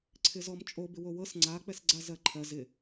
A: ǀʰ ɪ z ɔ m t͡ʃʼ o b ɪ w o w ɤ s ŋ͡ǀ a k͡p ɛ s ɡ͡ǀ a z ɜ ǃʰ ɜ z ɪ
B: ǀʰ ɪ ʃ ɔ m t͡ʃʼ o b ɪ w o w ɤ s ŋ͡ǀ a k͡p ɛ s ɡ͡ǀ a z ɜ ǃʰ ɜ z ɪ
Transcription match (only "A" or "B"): A